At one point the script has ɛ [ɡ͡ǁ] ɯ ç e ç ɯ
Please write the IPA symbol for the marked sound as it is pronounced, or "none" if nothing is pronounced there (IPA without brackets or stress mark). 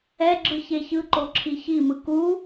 ɡ͡ǁ